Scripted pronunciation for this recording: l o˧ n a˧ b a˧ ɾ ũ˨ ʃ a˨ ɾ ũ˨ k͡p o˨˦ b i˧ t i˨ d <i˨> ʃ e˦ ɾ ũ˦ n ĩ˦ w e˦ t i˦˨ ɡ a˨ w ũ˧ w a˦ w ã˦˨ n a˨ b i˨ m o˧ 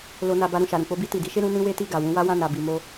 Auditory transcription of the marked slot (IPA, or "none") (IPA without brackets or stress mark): i˧